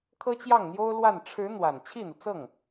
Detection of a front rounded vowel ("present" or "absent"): absent